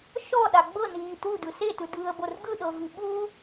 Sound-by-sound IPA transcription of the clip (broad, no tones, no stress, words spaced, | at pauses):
ʃɔɗa ɡ͡bɤniː tudɯ setɯdɯːə̯bor ɡɯɗɤvi ɓu